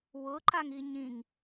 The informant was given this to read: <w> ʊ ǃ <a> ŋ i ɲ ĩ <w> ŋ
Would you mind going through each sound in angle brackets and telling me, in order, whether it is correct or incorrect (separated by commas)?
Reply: correct, correct, incorrect